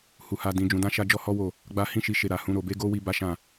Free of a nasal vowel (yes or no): no